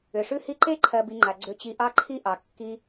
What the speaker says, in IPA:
ʏ˩ ʂ ʉ˦ h i˦ ǃ e˥ ǃʰ ɜ˨ b i˨ ŋ͡ǃ a˩ ɡ͡ǀ ʏ˨ t͡ɕ i˨ ʔ ɑ˦ ǃʰ i˦ ʔ ɑ˩ kː i˨

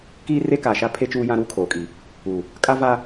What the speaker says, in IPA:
k iː˦ r e˦ k aː˨ ʃ a˦ pʰ e˦ t͡ʃ uː˦ j ã˦ ɾ uː˦ kʰ oː˨ kʼ iː˨ | uː˨ | kʼ a˦ v aː˦

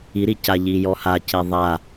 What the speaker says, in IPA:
i ɾ i c a ʎ i j ɔ h a c e ðˤ a

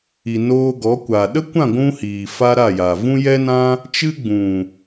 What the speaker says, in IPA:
i˨ n oː˧ ɡ ɔ˨˦ kʷ aː˨ ɗ ə˦ kʷ ã˦˨ ɡʷ ũ˧ h iː˨ f a˦ ɾ a˦˨ j a˨ v ũ˦ j ɛ˦ n ã˦ | t͡ʃ ɨ˦ ɡ͡b ũ˨

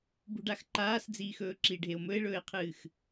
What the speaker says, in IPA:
b ṳ ɖ a x ǃ aː s d͡z iː x ɵː ǁ i ɖʱ e o̯ m ɵ e̯ ɭ ɵː e̯ qʰ ɨː x

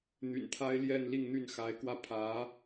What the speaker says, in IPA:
n̪ y̰˨˩ n t̪ʰ a˥ ɪ̯ l j ɛ˥˧ n l i˥˧ ŋ n̪ y˥˩ n x a˧˥ ɪ̯ k w ä˥˩ pʰ ä˧˥

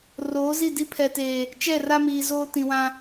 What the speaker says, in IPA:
r oː˨˦ z i˦˨ d i˦ pʰ ɛ˨ t eː˨ | t͡ʃ ɛ˦˨ r a˦ m iː˨ z oː˦ t ĩ˨ w ã˦

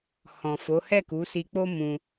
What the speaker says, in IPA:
h ɔ̃˨ f o˨˦ h ɛ˦˨ k u˨˦ s i˧ k͡p o˦ m ũ˧

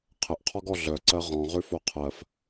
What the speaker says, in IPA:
qʰ ə ʔ qʰ ɔ ɡ ɔ ɮ œ ǀ ɜ ʁ ɔ̃ ʁ ʉ f o qʰ ɜ f

